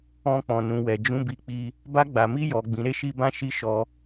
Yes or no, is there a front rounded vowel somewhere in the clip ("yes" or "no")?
no